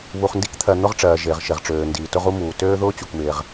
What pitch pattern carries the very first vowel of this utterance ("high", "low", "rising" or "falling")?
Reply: low